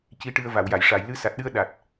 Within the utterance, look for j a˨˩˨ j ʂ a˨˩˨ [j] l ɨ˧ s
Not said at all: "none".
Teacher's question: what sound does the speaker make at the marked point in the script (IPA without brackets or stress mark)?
j